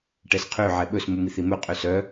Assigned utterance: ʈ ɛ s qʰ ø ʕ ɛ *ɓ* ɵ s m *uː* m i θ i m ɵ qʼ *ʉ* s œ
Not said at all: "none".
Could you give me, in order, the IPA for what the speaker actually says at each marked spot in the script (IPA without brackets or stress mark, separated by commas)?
ɓ, u, ø